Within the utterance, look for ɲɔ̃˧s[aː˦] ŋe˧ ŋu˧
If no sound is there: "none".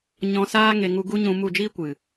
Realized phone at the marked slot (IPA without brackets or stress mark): aː˦